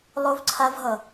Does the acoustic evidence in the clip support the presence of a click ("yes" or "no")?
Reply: yes